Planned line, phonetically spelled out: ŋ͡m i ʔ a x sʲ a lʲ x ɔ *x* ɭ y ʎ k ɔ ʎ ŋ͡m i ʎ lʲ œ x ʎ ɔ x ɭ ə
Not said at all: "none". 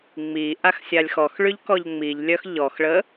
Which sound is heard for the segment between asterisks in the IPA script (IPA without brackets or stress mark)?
x